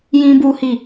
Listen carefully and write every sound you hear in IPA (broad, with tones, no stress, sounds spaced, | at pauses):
j ĩ˦ b u˦ h i˦˨